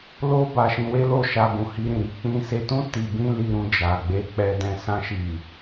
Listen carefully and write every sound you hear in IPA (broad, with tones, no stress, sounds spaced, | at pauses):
l o˦ b a˧ ʃ ĩ˧ w e˦ l o˦˨ ʃ a˧ b ũ˨ h i˧ ɾ ĩ˨ ɾ i˨˦ k͡p ĩ˦ s e˧ t ũ˦ t i˧ b ĩ˦ l i˧ ɾ ũ˧ d͡ʒ a˨ ɡ͡b e˧ k͡p ɛ˧ d ɛ̃˧ s ã˧ ʃ i˨